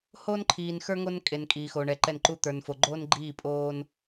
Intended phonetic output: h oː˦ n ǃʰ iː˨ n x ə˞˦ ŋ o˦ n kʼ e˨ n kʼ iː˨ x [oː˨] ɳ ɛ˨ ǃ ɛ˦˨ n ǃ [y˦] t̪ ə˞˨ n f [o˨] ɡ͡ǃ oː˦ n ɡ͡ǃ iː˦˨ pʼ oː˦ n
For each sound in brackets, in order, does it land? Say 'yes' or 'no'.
yes, no, yes

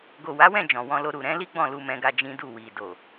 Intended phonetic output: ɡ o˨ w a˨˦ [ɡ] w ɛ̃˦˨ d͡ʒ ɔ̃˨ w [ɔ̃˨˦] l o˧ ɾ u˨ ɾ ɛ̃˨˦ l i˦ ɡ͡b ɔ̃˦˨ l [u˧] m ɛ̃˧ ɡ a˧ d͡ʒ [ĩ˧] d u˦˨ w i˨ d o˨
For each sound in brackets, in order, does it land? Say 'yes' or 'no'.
no, no, yes, no

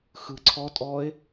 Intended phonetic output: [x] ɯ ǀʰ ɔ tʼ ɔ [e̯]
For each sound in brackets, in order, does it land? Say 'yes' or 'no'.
yes, yes

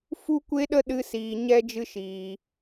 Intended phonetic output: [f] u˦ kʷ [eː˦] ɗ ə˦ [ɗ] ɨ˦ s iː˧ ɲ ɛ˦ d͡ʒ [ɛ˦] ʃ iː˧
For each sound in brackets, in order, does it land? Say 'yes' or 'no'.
yes, no, yes, no

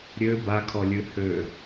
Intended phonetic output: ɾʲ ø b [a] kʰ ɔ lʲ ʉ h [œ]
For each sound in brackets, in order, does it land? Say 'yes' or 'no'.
yes, no

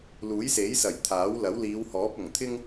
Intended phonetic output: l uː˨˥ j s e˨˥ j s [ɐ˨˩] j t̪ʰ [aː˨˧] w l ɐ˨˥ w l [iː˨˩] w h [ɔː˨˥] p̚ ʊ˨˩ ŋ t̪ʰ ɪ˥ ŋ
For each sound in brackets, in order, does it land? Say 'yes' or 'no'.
yes, no, no, yes

